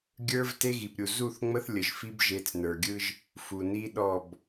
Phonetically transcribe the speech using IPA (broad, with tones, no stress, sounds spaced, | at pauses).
ɡʲ ə˞˦ v t e˦ ɣ i˨ p ɾʲ u˨ z u˦˨ θ ŋ͡m ə˦ θ lʲ ə˨ ʒ f i˦ b ʒ e˨˦ t͡s n ə˞˨ ɡʲ ɯ˦ ʒ | f u˨ n i˦ ɗ ɔ˦˨ b